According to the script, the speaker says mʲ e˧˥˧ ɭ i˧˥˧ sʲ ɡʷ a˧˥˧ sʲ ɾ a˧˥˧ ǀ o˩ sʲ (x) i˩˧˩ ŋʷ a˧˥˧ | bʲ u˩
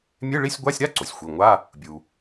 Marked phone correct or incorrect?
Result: incorrect